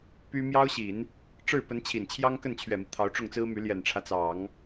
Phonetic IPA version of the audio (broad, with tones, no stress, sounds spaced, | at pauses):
p y˥ m j ɑ˥ ʊ̯ ɕ i˨˩˦ n | ʈ͡ʂ ɻ̩˥˩ p ə˧˥ n t͡ɕʰ i˨˩ n t͡ɕʰ j ɑ˥ ŋ k ə˥˩ n t͡ɕʰ ɥ ɛ˨˩ m i˦ t̪ʰ ɑ˧˥ ʊ̯ ʈ͡ʂ ʊ˥˩ ŋ t͡s ɹ̩˥ m y˧˥ l j ɛ˨˩ n ʈ͡ʂʰ ä˦ t͡s ɑ˨˩˦ ŋ